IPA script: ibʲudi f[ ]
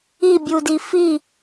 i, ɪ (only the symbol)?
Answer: i